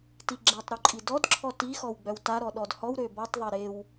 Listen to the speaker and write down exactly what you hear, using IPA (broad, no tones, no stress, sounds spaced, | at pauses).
t i ɡ͡ǁ ɛ tˤ ɾ o ǃʼ i d ɔ d ǁʰ ɔ t i x ɔ w ɡ͡b œ w t a ɾ ɔ ɗ ɔ d h ɔ w ɾ ø b ɔ tˤ ðˤ e ɾ e w